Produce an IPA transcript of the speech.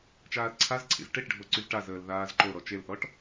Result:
t͡ʃ aː l ǀʰ a z ǀʰ ḭ z ʈ e ʈ ɖʱ o ǀ y z ʈ a z əː l ð aː z ǃ o ɾ ɔ t͡ʃ e l θ ɔ ʈ

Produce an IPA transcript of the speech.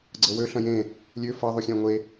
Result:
ɡ͡ǀ ɤ w ø ɬ ɐ̃ j ẽ | lʲ ø f ɐ ðˤ u xʲ ɛ̃ ŋʷ e

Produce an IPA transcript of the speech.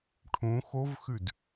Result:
ʈʰ ũ x o v x ʉ d

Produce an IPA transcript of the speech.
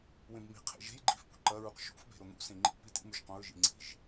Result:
w ẽ b m i̤ qʰ ḛ ʒ e̤ j ɡ͡ǃ i̤ f p ṳ ǃ ɐ ɹ u q ʃ ṵ f b e̤ ɾ o n̪ ṵ s ẽ ŋ͡ǃ ḭ p i t ḭ m ʉ ʒ q õ ɹ ʒ ḭ ŋ͡ǀ i̤ ʒ

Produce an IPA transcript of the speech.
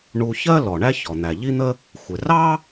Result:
ɳ u˧ ç ɜ˥ l ɔ˩ ɳ æ˥ ç ɔ˩ n̪ æ˩ ʎ i˥ n̪ ə˥ | xʷ ɪ˩ r ɑ˥

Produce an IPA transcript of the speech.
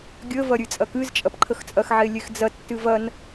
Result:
ɡʲ ə v ɐ ɾʲ ɨ t͡sʼ ɐ k ɨ z t͡ʃʼ ɐ p ǃʰ ə x t͡sʼ ɐ x ʕ e lʲ e x d͡z ɐ tː ɨ v ɐ n

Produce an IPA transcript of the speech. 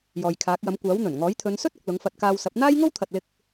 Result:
j ɔː˨ j kʰ aː˨˥ k̚ j ɐ˨˥ m kʷ aː˨˥ w n̪ ɵ˨˩ n ŋ ɔː˨˥ j t̪ʰ ɵ˨˧ n s ɵ˥ t̚ ʊ˨ k̚ l ʊ˨˥ ŋ f ɐ˧ t̚ k aː˧ w s ɐ˨˥ p̚ n̪ aː˥ j ŋ o˥ w t̪ʰ ɐ˨ t̚ l ɪ˧ k̚

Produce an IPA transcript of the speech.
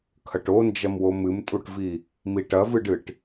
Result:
kʰ ɐ ʈ o n d͡ʒ ɐ m w o m ɨ m tʼ u ʈ v i | m i ʈ ɐ v ɨ ɖ ɨ ʈ

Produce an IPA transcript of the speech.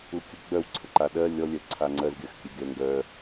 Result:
u kʲ ə ɡ͡b œ w ǀʰ ə ǃ a ɗ ɜ lʲ ɔ lʲ œ ǀʰ a ŋ͡ǀ ɜ z ɡʲ ɜ x kʲ e ɡʲ ɜ ŋ ɡ œ

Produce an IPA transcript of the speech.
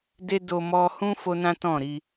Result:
d e˦ d o˧ m ɔ˧ h ũ˦ f o˦ n ã˦ t ɔ̃˦˨ ɾ i˧

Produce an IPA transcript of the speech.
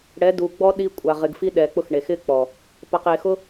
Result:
ɽ ɛ˨˦ d u˨ ɡ͡b ɔ˦ ɗ i˧ kʷʼ a˨ ʁ ɪ˨ ɡ f i˦ ɗ ɛ˨ k͡p ʊ˧ x ɳ e˨ x ɪ˦ k͡p ɔ˨ | p a˨ q e˨ x ʊ˦

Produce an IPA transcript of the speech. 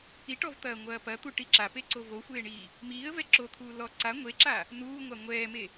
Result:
i ʈ ɔ v t̪ ɐː ŋʷ ɐː p ɐ t̪ u ʈ i ǁ a p e ǀ o v o xʷ eː ɳ iː | m iː ə̯ v ɛ ǁ o t̪ʰ uː l ɔ ǀ a ŋʷ e ǁ a | n uː ŋʷ a ŋʷ ɛː m e

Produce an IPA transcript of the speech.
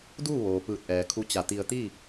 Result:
d uː˥˨ ʋ oː˩ p ɯː˧˩ t̚ ʔ ɛː˩ kʰ u˧˥ t͡ɕ a˧˩ t̪ i˧ ə̯ t̪ iː˥˨

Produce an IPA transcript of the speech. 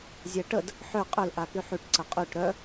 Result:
zʲ ɛ ʈ ə d | ħ ø qʼ ø l ʔ a k y ħ y ʈ ǀ ə qʼ y ʈ ɾ œ

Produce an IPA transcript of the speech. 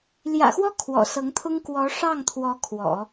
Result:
l j ä̰˨˩ x w ɔ˥ kʰ w ɔ̰˨˩ s ɤ˧˥ ŋ t̪ʰ ʊ˥ ŋ k w ɔ˧˥ ʂ ɑ˥˩ ŋ t̪ʰ w ɔ˧˥ kʰ w ɔ̰˨˩˦

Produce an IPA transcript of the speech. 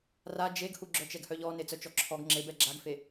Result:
r a d͡ʒ e ɡ h u ɡ͡ǁ œ t͡ʃ ɛ ɡ h œ ʎ ɔ n e t͡s œ t͡ʃ ɔ ǁʰ ɔ ɡ ŋ͡ǁ e b ɛ ɡ͡ǁ a ɡ f e

